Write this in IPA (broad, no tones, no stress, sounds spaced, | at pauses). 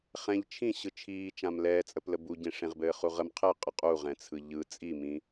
χ ɛ̃ ʎ t͡ʃʰ ĩ ɕ ɯ t͡ʃʰ iː t͡ʃ ã m l ɛː t͡sʼ ə p l ə b u ɟ ẽ ʂ ẽ ʁ b ɘː χ u ʁ ə m qʰ ɘ qʼ ə qʼ u ʁ ɛ̃ t͡sʰ ɯ ʎ ɯ t͡sʼ i m ĩ